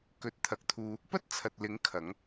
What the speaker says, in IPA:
k ɵ˨˥ t̚ t̪ʰ ɐ˨˥ k̚ t̪ʰ uː˧ | p ɐ˥ t̚ t͡sʰ ɐ˨ t̚ l ɪ˨˥ ŋ kʰ ɐ˨˥ ŋ

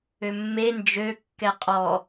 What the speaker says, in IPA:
ø mː e n d͡ʒ ø kː ɛ qʼ ɔ

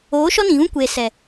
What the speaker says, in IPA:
oː˨˦ ʃ ɔ˦ n ĩ˨ ɣ ũ˦ kʷ eː˨ s ɛ˨

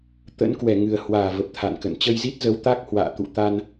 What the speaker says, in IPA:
t̪ ə̰˧˥ n k w ɛ˧˩ ŋ ɨ˨˩ ə̯ h w aː˧˩ v ə˨˩ p̚ t̪ʰ a̰˧˨ n k ə̰˧˨ n t͡ɕ ə˧ j z i˦˥ t̚ z ə˨˦ w t̪ a˦˥ k̚ h w a̰ː˧˨ t̪ ṵ˧˨ t̪ a˧ n

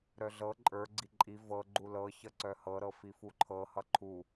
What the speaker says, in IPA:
ɾ œ ɮ ɤ ǃʼ ə˞ ɡ͡ǀ i ǃʼ i v ɤ ɡ͡ǃ u l ɤ ç ʌ ǀ œ h ɤ ɾ ɤ f i f u ǃʰ ɤ h ʌ ǃʰ u

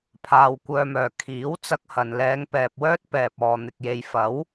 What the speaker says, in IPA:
pʰ aː˧ w kʷ œː˧ m œː˨ kʰ iː˨˥ w t͡s ɐ˥ k̚ h ɐ˨ n l ɛː˨˧ ŋ p ɛː˨ p̚ w œː˥ t̚ p ɛː˨ p̚ ɔː˨ n̪ ɪ˨ k̚ j e˨ j f ɐ˨˥ w

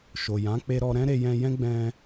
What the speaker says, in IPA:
ʃ o˨ j ã˨˦ k͡p e˧ ɾ ɔ˧ ɾ ɛ̃˦ ɾ e˧ j ɛ̃˧ j ɛ̃˦ ɡ͡b ɛ̃˧

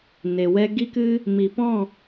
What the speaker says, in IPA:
n e˨ w ɛ˧ ɡ i˦ k ɨ˦ | m i˨ p ɔ̃˦˨

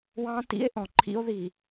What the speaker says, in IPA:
w ɑ̃˦ t ḭ˦ e̯ ʔ ɔ̃˨ ǃʰ ḭ˦ o̯ ð i˨

